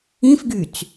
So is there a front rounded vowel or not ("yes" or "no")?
yes